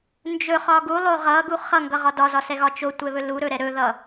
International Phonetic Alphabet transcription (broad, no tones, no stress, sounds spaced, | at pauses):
n d͡ʒ ɵ χ ɒ ɡ u lˠ o ʁ ʌ ɡ u χ ʌ ŋ ɡ ʌ ʁ ɒ d ɒ z ɒ s ɛ ɣ ɒ t͡ʃ o tʷ ɛ β ɵ l u ɾ ɵ ɾ ɛ ɾ ɵ ð ʌ